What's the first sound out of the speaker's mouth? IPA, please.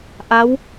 ʔ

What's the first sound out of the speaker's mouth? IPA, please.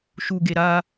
ʃ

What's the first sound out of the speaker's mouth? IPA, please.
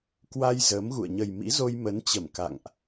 k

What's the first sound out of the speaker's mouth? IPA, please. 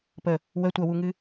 p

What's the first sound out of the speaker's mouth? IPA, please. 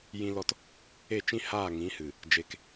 j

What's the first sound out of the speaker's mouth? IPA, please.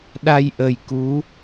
ɗ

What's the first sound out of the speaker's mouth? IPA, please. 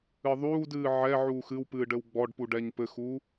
ɨ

